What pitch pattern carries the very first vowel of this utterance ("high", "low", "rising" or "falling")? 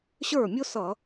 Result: falling